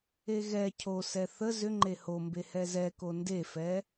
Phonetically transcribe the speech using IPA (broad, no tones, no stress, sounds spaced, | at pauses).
e ɣ ɛ cʰ o s ɛ θ ə z ʏ ŋ͡ǃ e h o m b e h ɛ z ɛ k o n d e f ɛ